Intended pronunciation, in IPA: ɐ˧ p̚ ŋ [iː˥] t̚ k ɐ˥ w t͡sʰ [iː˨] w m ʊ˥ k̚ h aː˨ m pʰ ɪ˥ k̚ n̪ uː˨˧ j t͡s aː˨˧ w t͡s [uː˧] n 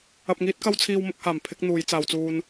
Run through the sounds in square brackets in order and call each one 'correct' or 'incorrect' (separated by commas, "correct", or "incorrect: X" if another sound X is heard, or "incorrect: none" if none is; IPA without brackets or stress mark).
correct, incorrect: iː˥, correct